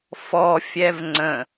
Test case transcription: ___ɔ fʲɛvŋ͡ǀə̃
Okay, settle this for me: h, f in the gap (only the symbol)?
f